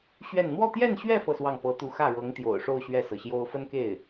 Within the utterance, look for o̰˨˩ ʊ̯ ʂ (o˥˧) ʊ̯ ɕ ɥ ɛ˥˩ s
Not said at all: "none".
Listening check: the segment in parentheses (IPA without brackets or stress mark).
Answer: o˥˧